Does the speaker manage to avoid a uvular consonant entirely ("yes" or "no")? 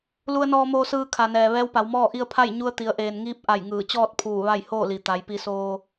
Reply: yes